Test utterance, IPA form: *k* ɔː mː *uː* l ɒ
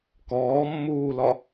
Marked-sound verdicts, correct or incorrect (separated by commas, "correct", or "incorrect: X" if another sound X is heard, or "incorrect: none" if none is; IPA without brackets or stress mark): correct, correct